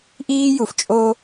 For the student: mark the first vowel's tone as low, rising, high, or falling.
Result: high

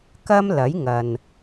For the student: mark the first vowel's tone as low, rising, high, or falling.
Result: high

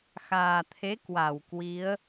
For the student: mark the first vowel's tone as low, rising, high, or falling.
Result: low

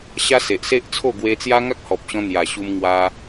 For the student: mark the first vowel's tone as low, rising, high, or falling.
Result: high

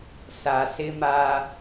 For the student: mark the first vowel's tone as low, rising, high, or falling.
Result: low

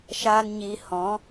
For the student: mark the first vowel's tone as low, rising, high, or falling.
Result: high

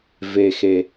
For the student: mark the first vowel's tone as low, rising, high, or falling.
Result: low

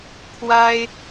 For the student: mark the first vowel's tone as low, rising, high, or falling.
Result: high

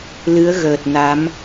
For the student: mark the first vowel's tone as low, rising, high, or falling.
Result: rising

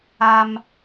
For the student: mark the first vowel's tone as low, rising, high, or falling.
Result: high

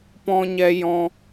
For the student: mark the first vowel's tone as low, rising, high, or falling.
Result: high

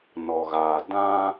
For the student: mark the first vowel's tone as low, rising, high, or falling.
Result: low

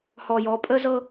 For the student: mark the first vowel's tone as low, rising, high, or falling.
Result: low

